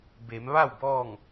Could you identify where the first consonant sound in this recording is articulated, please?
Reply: labial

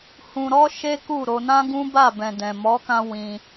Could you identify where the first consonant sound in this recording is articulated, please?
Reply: glottal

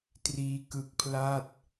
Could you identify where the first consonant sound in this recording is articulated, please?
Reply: alveolar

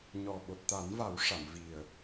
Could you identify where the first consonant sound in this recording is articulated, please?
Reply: palatal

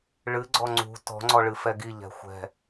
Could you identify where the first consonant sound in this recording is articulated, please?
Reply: retroflex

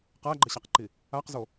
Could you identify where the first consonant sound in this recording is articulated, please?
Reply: uvular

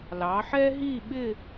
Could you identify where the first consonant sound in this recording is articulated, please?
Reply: alveolar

